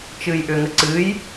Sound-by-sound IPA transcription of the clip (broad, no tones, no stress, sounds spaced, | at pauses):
t͡ʃ ɨː j ʔ ʏ ŋ ə ǀ ɨ j